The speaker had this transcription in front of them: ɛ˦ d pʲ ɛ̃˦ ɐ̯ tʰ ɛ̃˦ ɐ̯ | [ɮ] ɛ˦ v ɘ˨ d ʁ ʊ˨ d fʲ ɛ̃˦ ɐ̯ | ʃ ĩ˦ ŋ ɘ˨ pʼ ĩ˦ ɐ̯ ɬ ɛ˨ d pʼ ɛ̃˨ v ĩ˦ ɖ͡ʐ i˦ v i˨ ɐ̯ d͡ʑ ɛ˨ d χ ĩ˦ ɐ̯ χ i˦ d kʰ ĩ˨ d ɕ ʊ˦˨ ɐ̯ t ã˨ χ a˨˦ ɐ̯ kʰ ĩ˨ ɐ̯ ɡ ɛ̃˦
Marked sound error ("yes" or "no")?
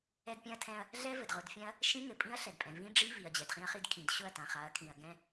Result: no